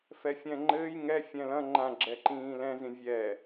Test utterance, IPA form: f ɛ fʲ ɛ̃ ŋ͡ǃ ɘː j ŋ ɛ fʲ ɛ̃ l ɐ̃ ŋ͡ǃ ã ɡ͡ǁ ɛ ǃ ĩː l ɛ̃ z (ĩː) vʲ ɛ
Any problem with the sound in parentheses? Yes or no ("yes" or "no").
yes